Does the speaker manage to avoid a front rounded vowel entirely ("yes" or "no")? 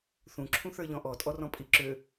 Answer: no